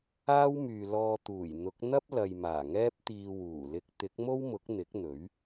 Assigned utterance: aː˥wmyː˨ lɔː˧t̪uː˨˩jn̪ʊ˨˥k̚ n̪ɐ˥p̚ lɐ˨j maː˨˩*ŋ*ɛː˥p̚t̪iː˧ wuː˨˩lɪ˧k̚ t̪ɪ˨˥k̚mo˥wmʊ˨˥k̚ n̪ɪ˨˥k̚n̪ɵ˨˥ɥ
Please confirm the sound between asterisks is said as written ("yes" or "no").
yes